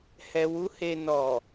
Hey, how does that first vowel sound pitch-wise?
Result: low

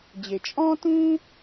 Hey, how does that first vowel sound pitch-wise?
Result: low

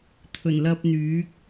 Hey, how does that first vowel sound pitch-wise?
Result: low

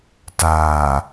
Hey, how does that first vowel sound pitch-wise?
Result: low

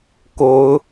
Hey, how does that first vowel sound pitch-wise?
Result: rising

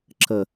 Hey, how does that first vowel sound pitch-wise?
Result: low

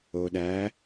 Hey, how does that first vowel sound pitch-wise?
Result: low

